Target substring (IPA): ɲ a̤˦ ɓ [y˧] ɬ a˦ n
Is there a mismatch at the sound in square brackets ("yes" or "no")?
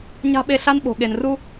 yes